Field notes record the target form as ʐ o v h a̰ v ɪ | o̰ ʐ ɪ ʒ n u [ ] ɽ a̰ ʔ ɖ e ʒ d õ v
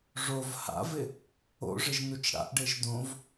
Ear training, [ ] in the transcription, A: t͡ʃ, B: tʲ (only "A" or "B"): A